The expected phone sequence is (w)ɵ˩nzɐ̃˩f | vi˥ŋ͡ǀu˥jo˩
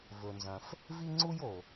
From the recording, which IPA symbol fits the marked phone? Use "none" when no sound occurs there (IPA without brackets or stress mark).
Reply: v